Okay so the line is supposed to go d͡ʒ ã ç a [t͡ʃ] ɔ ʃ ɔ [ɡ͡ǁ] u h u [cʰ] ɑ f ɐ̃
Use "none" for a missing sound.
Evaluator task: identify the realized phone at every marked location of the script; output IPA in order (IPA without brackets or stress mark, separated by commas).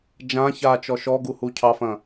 t͡ʃ, ɡ, cʰ